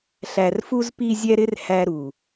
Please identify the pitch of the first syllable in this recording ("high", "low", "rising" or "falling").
low